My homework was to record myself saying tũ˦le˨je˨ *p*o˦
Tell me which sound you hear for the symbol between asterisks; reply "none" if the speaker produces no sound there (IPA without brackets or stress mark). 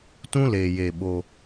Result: ɓ